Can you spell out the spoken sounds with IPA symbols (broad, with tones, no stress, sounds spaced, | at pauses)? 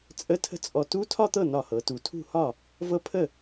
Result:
t͡sʼ ə˧˥˧ tʰ ə̤˦˥ t͡sʼ ɔ˧˩ t u˦˥ tʰ ɒ˥˧ t̪ ɤ˥˩ n ɒ˧˩ h ɤ˩˧ t u˩˧ tʰ ṳ˥˩ h ɒ˥˩ | v ɤ˦˥ pʰ ə˥˩